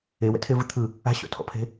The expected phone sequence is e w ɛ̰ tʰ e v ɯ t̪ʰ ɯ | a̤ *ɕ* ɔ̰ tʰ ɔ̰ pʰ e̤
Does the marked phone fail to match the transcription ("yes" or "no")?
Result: no